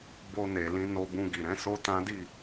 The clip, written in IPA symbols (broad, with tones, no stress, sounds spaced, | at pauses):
b o˧ n e˨ l ĩ˧ n o˧ b ũ˧ ɡ i˨ ɾ ɛ̃˨˦ s o˦ t ã˦ d i˦˨